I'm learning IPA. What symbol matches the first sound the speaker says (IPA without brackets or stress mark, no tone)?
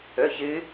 ɵ